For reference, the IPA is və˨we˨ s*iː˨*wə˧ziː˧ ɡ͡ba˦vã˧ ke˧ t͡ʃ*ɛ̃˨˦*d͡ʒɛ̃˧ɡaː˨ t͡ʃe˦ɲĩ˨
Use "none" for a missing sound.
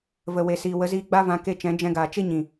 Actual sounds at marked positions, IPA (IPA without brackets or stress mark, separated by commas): iː˨, ɛ̃˨˦